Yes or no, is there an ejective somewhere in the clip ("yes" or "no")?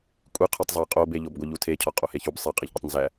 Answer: yes